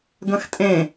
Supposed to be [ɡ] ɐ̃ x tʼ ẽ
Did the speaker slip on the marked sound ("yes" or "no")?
no